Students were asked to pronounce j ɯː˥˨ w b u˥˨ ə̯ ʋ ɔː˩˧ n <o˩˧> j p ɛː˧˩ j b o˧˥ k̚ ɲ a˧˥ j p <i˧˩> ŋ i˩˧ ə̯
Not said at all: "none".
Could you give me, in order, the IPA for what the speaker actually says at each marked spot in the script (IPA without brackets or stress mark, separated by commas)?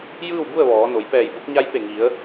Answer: o˩˧, e˧˩